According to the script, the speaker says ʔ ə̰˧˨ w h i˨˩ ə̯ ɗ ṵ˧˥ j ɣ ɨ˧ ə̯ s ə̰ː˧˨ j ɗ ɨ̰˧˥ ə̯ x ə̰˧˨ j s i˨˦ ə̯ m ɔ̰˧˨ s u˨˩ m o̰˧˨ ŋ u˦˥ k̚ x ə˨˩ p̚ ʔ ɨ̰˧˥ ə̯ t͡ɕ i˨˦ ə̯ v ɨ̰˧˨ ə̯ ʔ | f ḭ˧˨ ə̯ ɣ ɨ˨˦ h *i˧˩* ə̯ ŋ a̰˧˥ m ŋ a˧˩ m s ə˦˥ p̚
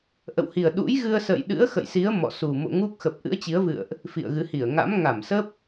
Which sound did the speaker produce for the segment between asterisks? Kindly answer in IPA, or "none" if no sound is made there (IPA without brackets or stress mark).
i˧˩